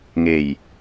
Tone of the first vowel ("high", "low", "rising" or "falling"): low